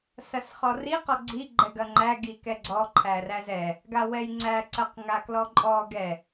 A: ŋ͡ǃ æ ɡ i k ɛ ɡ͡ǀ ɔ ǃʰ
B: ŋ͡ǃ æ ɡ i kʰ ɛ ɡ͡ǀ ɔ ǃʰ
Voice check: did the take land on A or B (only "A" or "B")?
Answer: A